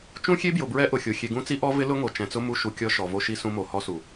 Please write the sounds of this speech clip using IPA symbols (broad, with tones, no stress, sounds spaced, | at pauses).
t͡ʃ ũ˦ xʲ e˦ b j ʊ˨ b ɹ ɛ˦ ʔ ʊ˨ xʲ o˨ xʲ e˨ ɡ ũ˦ t͡s i˦ ʔ ɔ˦ v ɪ˦ l ʊ˦ ŋ o˨ t͡ʃ ɛ̃˨ t͡s ʊ˦ m u˦ ʃ u˨ kʲ ɔ˦ ʃ ɔ˨ v o˦ ʃ i˦ s ũ˦ m o˨ h ɔ˦ s u˨